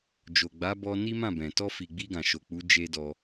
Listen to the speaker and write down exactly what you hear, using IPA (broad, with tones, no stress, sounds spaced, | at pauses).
d͡ʒ o˨ ɡ͡b a˨˦ b ɔ˧ n i˦ m ã˦˨ b ɛ̃˨ t ɔ˧ f i˨ ɡ͡b i˧ ɡ ã˨ ʃ o˨ k͡p u˨˦ d͡ʒ e˦ d ɔ˧